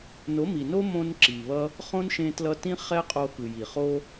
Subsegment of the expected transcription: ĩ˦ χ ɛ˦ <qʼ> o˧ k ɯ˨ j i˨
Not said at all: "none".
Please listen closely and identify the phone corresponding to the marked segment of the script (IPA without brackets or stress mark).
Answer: qʼ